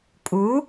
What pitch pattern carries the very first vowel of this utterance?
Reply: rising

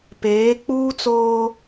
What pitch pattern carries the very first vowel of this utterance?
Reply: rising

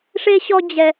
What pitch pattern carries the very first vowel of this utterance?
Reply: high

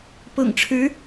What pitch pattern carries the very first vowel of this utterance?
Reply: low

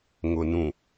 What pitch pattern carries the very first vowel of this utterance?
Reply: low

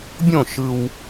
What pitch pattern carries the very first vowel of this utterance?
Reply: falling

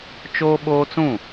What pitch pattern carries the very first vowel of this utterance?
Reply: high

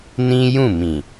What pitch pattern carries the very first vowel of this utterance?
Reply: high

